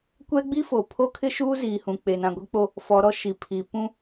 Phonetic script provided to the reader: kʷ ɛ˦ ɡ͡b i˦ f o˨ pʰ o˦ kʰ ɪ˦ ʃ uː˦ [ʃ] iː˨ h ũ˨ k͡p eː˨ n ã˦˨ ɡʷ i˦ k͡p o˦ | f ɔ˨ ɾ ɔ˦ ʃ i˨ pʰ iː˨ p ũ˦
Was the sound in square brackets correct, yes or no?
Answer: no